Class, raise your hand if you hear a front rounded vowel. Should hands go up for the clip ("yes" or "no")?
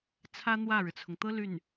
yes